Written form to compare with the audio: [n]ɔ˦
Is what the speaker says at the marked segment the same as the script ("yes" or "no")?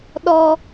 no